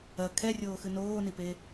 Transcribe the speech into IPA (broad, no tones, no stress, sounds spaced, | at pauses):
ɐ kʰ ɛ rʲ oː x ɨ n oː n i p e